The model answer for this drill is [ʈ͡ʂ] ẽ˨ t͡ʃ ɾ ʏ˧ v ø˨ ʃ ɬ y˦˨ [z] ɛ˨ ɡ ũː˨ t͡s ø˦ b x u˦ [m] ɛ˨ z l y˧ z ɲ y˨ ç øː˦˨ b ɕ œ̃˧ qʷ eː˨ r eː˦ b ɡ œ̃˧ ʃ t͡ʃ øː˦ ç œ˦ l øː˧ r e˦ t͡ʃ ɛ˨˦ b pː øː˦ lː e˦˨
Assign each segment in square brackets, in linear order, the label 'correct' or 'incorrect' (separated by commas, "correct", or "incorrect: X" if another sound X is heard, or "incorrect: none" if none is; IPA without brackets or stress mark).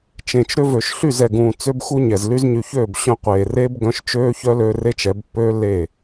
incorrect: t͡ʃ, correct, incorrect: ɲ